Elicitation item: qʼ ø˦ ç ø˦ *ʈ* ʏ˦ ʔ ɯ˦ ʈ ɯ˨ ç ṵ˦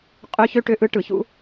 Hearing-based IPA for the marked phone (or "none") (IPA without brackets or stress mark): ʈ